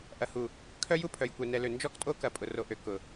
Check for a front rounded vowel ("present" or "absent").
present